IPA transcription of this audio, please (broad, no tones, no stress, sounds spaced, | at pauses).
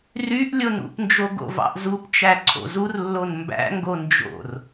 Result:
r y ʔ lʲ o n ṵ p n d͡ʒ o ɡ o̰ v ɑ̰ ʔ z u p t͡ʃ æ ǀʰ o̰ z u r lː o n m b æ̰ ŋ ɡ o n d͡ʒ o̰ r